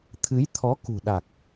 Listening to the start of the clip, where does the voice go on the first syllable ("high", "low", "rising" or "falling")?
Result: rising